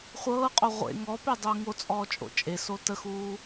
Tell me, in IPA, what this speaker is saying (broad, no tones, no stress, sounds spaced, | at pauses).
χʷ ɤː qʼ o ʁʷ ḛ ŋ ɔ p e dˤ uː ŋ o t͡sʼ ɔː t͡ʃʼ o̰ t͡ʃʼ e s o t ə x uː